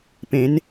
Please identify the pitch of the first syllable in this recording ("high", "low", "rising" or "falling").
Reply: rising